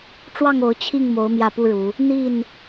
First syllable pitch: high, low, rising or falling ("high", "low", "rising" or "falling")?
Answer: falling